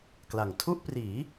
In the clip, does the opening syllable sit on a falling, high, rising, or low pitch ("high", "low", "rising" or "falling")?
low